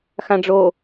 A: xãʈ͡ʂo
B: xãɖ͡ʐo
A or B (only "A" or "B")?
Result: B